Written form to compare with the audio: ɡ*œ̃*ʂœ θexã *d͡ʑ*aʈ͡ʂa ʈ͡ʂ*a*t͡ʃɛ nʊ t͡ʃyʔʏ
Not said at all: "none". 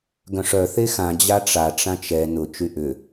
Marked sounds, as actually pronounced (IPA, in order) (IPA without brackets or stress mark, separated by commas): œ̃, d͡ʑ, ã